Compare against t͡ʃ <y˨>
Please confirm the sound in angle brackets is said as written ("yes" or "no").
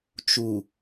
no